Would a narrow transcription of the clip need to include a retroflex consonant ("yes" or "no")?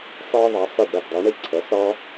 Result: yes